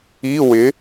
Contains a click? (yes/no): no